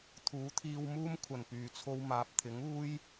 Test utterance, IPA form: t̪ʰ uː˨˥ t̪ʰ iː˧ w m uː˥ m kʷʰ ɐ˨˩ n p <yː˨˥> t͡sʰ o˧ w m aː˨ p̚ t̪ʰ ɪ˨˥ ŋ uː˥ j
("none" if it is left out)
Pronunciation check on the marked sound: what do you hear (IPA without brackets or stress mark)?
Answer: yː˨˩